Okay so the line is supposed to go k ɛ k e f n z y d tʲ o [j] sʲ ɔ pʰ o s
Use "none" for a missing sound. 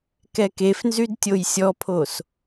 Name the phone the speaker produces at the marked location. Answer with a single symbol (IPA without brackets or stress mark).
j